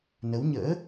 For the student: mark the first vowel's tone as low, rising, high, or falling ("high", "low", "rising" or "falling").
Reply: rising